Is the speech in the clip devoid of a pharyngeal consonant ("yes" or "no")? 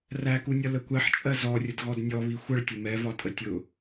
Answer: no